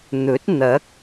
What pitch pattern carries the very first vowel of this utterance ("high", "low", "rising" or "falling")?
rising